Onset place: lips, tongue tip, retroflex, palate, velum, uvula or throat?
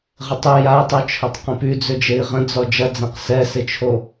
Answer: uvula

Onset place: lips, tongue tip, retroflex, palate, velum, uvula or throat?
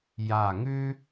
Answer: palate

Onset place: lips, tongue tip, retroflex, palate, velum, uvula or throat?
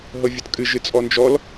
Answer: throat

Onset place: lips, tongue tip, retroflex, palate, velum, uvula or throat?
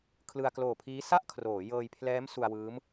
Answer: velum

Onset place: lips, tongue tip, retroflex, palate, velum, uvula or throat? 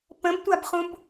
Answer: lips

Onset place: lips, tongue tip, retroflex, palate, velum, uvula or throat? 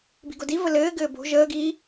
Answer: lips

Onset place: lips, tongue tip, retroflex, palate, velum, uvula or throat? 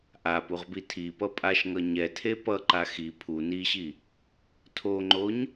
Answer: throat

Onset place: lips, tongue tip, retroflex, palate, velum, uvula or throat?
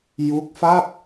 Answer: palate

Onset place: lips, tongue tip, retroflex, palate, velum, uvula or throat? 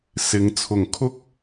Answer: tongue tip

